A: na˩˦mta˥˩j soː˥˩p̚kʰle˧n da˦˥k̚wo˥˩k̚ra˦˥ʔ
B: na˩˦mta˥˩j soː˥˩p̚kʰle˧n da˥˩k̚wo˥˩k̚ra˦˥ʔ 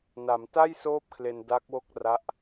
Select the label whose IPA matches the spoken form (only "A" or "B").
A